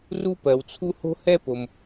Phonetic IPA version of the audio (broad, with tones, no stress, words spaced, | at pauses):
ru˥pɜ˩wt͡sʰu˥ ho̤˥hɛ˥po˩m